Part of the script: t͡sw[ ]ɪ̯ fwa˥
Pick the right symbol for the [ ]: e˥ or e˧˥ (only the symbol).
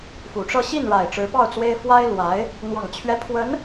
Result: e˥